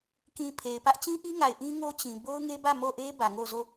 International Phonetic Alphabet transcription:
k ĩ˨ pʰ e˨ ɪ̯ p ä˦ ʔ t͡ɕ ĩ˦ ʔ i˦ ŋ a˨ ɪ̯ ʔ ĩ˦ ŋ o˦ t͡ɕ ĩ˨ b o˦ ʊ̯ ŋ e˦ b ä˦˨ m o˦˨ ʔ e˦ b ä˨ ŋ o˦˨ z o˦˨

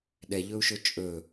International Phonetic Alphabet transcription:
ɗ ɛ ʎ ɵ u̯ ʃ ɵ t͡ʃʼ ɵ

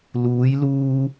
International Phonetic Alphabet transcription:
l uː˨˧ j l uː˧

